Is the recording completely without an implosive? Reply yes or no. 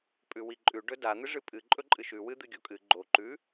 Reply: yes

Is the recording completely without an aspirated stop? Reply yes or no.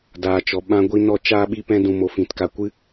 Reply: yes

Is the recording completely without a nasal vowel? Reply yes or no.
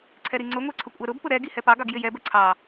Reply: yes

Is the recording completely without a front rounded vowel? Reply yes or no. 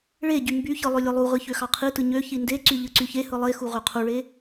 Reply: no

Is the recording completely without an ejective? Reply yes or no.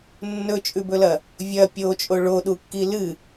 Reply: no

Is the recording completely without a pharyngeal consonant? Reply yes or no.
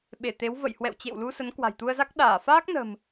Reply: yes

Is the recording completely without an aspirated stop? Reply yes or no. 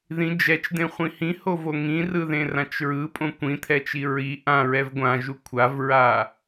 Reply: no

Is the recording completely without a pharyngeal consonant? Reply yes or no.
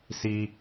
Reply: yes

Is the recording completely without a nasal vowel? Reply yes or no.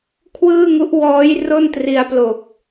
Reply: yes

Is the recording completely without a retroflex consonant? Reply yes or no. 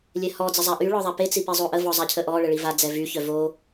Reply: no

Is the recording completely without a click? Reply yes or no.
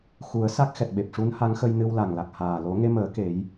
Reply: yes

